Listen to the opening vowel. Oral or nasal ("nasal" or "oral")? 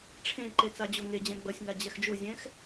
nasal